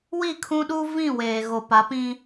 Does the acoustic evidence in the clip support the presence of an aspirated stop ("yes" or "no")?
yes